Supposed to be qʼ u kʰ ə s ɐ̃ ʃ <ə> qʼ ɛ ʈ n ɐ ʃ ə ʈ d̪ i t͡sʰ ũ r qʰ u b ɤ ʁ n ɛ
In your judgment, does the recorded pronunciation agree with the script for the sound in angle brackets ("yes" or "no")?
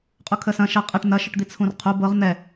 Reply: no